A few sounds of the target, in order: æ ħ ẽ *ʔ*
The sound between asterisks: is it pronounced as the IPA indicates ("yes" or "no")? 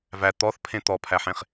no